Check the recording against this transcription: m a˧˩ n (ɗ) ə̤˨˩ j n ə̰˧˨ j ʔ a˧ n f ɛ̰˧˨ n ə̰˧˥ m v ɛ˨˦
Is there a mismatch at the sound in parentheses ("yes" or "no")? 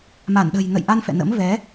no